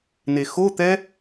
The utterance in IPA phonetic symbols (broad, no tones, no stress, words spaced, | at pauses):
nexot̪ɛ